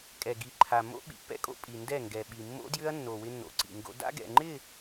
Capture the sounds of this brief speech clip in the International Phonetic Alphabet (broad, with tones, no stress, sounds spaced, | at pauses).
kʼ ɛ˨ ɡ i˨ ǃʰ a˨ m o̰˦ ɓ ḭ˨ pː ɛ̰˦ kʼ o̰˦ pʼ i˨ n d ɛ˦˨ ŋ ɡ ɛ˨ ɓ i˨ mː o̰˦ d j ʏ˦ ɐ̯ nː o˨ w ɪ˦ nː o̰˨ ǀ ḭ˨ ŋ ɡ o̰˦ d a̰˦ ɡ ɛ̰˨ ŋ͡ǃ ɪ˦˨